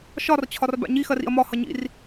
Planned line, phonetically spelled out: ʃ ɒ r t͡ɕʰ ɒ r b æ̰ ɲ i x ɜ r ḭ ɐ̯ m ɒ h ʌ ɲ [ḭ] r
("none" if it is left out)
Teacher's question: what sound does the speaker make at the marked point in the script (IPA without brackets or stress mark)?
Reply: ḭ